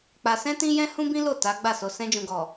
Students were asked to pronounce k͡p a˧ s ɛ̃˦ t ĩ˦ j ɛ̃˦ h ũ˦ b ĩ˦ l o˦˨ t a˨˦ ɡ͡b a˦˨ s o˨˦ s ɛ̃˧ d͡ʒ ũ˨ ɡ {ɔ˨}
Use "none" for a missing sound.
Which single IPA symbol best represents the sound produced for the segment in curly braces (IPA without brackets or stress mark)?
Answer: ɔ˨